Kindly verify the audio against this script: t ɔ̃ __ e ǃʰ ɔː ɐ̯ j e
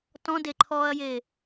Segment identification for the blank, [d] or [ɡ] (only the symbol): d